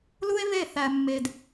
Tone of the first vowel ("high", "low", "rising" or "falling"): high